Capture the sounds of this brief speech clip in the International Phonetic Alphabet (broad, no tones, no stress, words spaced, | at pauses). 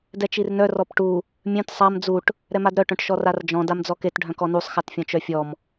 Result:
dɛt͡ʃirnœ rɔpʈu | mʲœ̃t sˤam d͡zuʈ | ɾɛmadɾœ ʈœ̃ʈʃɔrard͡ʒɔ̃ damd͡zɔket ɖʱœ̃kɔnusˤ xatfʲɔ̃t͡ʃœfʲɔm